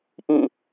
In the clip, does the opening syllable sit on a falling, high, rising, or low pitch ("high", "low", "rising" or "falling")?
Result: falling